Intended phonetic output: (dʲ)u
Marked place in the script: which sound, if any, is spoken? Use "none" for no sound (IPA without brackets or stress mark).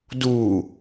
d